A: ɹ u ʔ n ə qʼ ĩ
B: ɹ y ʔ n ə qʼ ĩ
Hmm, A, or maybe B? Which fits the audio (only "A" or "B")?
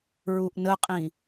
A